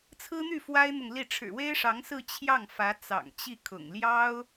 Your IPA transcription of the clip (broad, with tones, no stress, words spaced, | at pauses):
t͡sʰɹ̩˥n̪y˥˩ fwa˥ɪ̯n̪ʊ˨ŋli˥˩ ʈ͡ʂʰɻ̩˨˩we˥ɪ̯ʂɑ˧˥ŋ sɹ̩˥˧t͡ɕʰjɑ˥˩ŋfä˧˥ t͡sɑ̰˨˩ŋt͡ɕi˥˩kʰʊ̰˨˩ŋ ljɑ˥ʊ̯